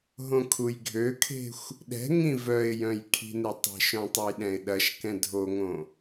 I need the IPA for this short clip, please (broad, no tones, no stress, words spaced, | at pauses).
ɦõkʰujɡʱøkʰe̤xʷ | ɗɛ̤ ŋĩvœɪ̯jœ̃j kʰi̤netˤe̤ʃœ̃ tˤujɗɛ̃ɪ̯ɗɐʃkɛ̃ dʱoŋõ